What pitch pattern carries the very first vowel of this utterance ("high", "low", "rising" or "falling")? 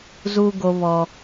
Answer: high